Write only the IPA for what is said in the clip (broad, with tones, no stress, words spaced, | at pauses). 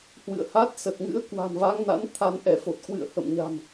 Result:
hwɨ̰˧˨ə̯ha˦˥t̚ sə˨˩t̚ŋɨ̰˧˥ə̯ kwa̤˨˩nva˨˦ŋna̰˧˥n t̪ʰa˧nʔɛ˧˩fo˨˩t̚ kwɨ̰˧˨ə̯hə̰˧˨m ɲa̤˨˩m